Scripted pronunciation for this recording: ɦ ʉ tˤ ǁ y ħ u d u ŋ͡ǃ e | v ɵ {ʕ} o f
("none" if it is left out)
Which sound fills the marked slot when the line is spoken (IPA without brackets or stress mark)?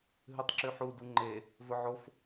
ʕ